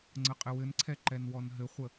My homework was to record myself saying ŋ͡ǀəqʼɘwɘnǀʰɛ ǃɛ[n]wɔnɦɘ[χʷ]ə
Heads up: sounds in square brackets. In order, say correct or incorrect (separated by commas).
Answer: correct, correct